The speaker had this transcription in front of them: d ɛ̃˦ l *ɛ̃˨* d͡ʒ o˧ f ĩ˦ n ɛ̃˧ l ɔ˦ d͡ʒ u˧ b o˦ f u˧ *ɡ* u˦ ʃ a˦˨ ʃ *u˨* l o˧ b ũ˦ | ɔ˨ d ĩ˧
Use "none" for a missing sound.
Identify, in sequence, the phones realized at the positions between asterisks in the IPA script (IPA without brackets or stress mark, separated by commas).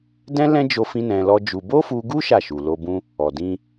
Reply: ɛ̃˦, ɡ, u˨